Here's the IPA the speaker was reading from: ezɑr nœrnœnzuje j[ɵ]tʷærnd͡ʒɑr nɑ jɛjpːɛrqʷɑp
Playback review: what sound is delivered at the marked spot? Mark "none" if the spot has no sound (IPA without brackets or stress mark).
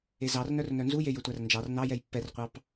ɵ